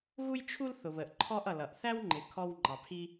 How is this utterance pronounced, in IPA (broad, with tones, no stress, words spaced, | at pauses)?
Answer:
ɣu˥jt͡ʃʰu˥l θʊ˨βə˨ʔ ǃʰɔ˥ʔ ʌ˨lʌ˨ʔ θæ˥wŋ͡ǃɪ˨ kʰɔ˥wŋ͡ǃɑ˨ pʰi˥